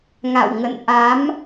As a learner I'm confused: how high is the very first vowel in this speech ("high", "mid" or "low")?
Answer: low